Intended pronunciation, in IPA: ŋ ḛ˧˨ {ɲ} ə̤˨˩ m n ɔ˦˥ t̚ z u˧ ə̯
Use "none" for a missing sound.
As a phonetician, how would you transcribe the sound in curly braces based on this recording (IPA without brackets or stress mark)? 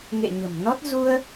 ɲ